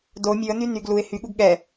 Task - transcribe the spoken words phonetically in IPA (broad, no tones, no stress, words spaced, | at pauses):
do mʲʉə̯ny nyɡ luɪ̯ hyɠuɡ ɠɛ